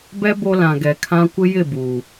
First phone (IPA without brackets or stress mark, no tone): b